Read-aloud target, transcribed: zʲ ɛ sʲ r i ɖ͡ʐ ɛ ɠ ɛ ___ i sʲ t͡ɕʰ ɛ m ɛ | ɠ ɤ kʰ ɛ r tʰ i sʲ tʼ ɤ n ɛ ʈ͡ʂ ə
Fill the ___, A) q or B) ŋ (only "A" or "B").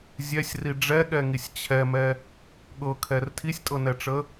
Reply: B